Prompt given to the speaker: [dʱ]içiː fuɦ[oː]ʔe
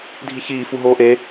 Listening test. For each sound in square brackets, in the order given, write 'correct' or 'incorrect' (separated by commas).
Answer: correct, correct